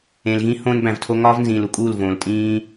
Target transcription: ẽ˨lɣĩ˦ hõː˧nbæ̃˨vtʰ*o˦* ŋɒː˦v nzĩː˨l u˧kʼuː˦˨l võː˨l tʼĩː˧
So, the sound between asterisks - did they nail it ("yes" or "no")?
no